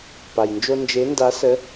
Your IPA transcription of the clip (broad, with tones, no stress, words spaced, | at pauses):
pa˩jnd͡ʒo˦ nd͡ʒe˨˦nda˨˦sə˨˦